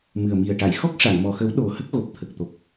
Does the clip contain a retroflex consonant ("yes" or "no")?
yes